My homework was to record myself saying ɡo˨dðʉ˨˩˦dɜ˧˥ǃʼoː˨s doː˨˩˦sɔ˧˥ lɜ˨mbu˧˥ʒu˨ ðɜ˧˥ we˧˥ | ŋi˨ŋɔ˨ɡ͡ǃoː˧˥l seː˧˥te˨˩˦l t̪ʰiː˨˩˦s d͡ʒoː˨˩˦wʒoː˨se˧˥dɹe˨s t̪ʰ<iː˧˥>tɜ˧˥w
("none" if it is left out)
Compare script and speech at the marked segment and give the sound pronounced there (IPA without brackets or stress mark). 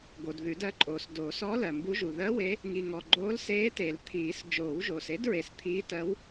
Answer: iː˧˥